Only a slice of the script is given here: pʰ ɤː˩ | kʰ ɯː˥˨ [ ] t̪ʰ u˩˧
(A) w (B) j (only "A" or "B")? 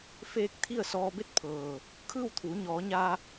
A